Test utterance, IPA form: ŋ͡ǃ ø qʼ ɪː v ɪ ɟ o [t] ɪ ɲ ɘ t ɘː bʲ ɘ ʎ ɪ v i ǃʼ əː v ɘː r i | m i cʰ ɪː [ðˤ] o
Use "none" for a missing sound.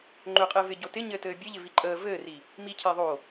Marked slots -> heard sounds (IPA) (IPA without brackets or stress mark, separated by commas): t, ðˤ